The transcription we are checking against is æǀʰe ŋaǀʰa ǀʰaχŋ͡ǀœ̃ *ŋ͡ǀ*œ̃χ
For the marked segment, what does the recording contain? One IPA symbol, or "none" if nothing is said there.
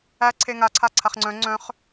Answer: ŋ͡ǀ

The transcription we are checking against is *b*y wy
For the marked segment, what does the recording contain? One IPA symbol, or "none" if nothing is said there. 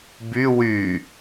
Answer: b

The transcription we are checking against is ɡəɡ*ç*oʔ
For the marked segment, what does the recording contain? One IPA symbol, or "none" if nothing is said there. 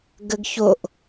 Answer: ç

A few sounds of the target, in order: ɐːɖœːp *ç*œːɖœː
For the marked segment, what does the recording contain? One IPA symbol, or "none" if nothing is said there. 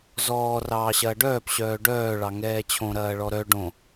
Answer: ɕ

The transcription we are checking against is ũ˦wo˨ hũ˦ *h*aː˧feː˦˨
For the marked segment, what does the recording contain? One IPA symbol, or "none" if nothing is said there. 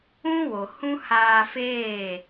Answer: h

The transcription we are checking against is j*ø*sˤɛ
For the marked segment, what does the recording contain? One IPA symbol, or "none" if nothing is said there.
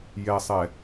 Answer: ɛ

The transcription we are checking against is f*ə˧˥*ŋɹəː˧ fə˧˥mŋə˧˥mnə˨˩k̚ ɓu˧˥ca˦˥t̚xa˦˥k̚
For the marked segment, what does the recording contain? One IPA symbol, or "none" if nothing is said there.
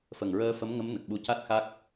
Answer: ə˨˩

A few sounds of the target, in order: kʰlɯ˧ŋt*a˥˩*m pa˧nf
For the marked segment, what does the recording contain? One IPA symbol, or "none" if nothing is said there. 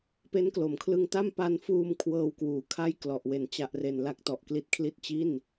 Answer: a˥˩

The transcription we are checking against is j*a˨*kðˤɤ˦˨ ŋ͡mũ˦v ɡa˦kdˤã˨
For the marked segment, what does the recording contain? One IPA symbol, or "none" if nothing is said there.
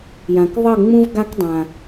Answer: ã˨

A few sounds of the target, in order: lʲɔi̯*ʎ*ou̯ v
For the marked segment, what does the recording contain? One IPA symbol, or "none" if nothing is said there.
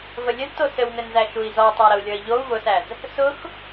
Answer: ʎ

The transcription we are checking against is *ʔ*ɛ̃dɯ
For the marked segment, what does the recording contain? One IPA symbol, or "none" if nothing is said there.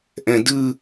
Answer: ʔ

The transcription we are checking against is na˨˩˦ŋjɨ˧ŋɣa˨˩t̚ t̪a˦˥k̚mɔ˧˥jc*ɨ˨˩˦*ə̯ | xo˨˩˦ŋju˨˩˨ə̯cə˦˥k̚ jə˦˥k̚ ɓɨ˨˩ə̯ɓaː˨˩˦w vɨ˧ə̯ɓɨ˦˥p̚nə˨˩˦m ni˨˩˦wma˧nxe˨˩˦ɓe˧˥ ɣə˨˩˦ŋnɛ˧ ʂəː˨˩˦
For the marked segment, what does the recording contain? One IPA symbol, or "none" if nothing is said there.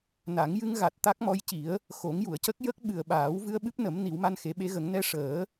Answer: i˨˩˦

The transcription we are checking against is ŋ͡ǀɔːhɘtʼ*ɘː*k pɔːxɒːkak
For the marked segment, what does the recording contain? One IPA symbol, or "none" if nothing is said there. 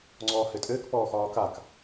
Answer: ɘː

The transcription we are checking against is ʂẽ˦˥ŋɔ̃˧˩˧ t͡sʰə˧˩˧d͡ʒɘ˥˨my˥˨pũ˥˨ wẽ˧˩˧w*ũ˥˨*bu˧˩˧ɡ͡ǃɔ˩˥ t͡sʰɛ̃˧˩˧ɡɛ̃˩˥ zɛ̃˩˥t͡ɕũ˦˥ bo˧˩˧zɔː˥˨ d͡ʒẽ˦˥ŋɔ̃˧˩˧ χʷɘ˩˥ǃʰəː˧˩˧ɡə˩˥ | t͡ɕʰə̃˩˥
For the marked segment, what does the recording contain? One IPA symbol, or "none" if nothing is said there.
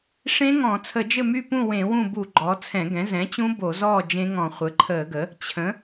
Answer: ũ˥˨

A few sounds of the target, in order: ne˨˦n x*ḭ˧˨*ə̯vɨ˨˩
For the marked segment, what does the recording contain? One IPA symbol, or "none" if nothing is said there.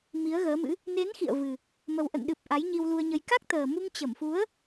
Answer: ḭ˧˨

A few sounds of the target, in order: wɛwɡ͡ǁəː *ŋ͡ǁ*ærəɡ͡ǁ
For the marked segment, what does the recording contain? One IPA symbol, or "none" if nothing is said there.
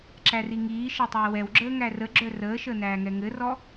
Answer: ŋ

